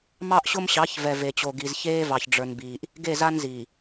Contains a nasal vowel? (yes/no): no